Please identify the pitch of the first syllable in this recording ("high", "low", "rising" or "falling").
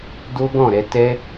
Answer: high